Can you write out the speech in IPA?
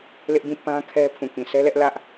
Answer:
lɪ˦ʔbĩ˦˨ pã˦kʰɛ˦ pʰũ˨kĩ˨sʰɛ˦ lɛ˦ʔlä˦ʔ

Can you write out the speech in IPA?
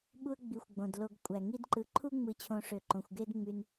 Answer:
ɓu˦ə̯ ɡ͡bi˨xʷɡ͡bõ˩d lo˨ɡkʷʼæ˩ ŋi˦dǃɯ˨ǃʰu˥ ŋ͡mɯ˨t͡ɕʰõ˨ʂø˩ ǃõ˩xʷɡe˦d ŋ͡my˩n

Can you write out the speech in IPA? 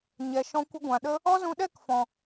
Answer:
ɲɛ˨ʃɔ̃˧ kʷə˧ɡʷã˨ ɗə˧ | ɔ˦zũ˧ɗɛ˦˨k fɔ̃˨

